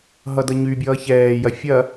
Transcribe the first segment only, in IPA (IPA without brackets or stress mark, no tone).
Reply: ɦ